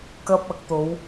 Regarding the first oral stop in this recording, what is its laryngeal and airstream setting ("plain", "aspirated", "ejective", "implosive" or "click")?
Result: plain